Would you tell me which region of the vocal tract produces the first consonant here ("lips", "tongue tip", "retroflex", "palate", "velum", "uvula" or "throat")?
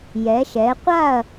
palate